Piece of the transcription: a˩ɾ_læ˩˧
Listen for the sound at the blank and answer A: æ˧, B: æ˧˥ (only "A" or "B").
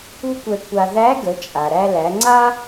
A